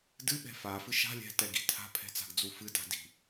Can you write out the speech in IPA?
d ɨ ɓ ɛ̤ f a f ɨ ʃ a̤ lʲ ɛ̤ t ɛ ɡ i̤ tʰ a̤ pʰ ɛ̤ t͡s a̤ ɡ d͡z u f ɨ d a̤ d i̤

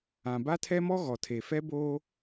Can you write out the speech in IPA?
ã˨ b a˦ tʰ ɛ˦ m ɔ˦ ɣ ɔ˨ tʰ e˨ f ɛ˦ b oː˦

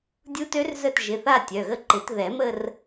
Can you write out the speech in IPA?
dʲ u˧˥ t ø˧˥ r z œ˥˩ t ʒ ɪ˩˧˩ θ a˥˧ tʲ œ˩˧˩ ɣ ə˥˩ ǃ ɪ˨˩˦ t ð ɛ˨˩˦ m ə˥˧ r

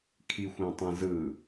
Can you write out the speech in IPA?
kʰ i xʷ ẽ tˤ ẽ z ɯ

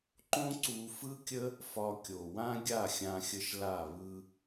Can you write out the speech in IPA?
ǃ õ˦ ǀ u˧ f ɯ˦ kʲ ə˦ | f ɒ˧ kʲ o˨ w ã˦ ɡʲ a˦˨ xʲ ã˧ xʲ ə˧ ʃ l a˦˨ β ɯ˦

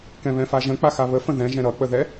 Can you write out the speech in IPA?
k ɛ̃ β ɛ̃ f a ʒ ə̃ k͡p a x a β ə f ə̃ ð ɛ̃ ʒ ɛ̃ ɾ ʌ k͡p ə ð ɛ

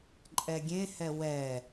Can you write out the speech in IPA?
ǃʼ ɛ ɡʲ ẽ h ɛ w ɛ

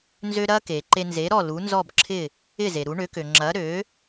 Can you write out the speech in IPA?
n z ø˥ ɾ ɐː˥ k eː˩ ǃ e˧ n z e˩˥ ɾ ɔ˥˩ l u˩˥ n z ɔ˥˩ b ǁʰ ɪː˥˩ | ɪ˥˩ z e˩ ɾ u˩˥ ɳ ø˩˥ k ø˩ ŋ͡ǁ ɐː˩˥ ɾ øː˩˥

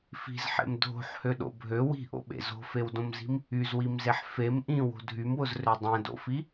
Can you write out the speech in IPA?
f i̤ z ħ ḛ m dʱ o̤ ħ h ø ɗ o̰ bʱ ø w i̤ ʔ o̰ ɓ ḛ z o̤ f e w d õ m z i̤ m | y z w i m z e ħ f e m ʔ ĩ w o̤ dʱ y m w ʊ z r ø dˤ ẽ d o̰ f i

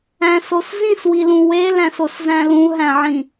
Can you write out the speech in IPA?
æ̃ s o s z ĩ s w i l ũ w e l æ̃ s o s z æ̃ l ũ ɦ æ̃ ʕ ĩ

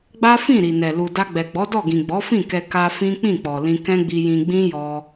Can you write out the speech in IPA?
ɡ͡b a˦ f ĩ˦˨ ɾ i˨ n ɛ˨ l u˨ d a˧ ɡ͡b ɛ˨ ɡ͡b ɔ˨˦ d ɔ˦˨ ɡ ĩ˨ ɡ͡b ɔ˨˦ f ĩ˦˨ k ɛ˧ k a˧ f ĩ˦ k͡p ĩ˦˨ k͡p ɔ˨ l ĩ˧ k ɛ̃˦ ɡ͡b i˧ j ĩ˧ ɡ͡b ĩ˦ j ɔ˧

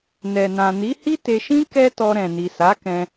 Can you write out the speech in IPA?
n ɛ˨ n ã˨ n i˨˦ h i˦ t e˧ ʃ ĩ˦ k ɛ˦ t ɔ˧ ɾ ɛ̃˨ n i˨ s a˨˦ k ɛ̃˧

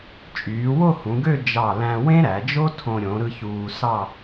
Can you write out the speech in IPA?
t͡ʃʼ yː˩˧ w o˥˧ h ũ˩˧ ɡ ø˥˧ d͡ʒ ɑ˧˩ l æ̃˧ w ẽ˥ ɾ æ˩˧ d͡ʒ o˥ tʰ õ˧ ɾʲ õ˩˧ ɾ ɯ˧ ç uː˧ s ɑ˥˧

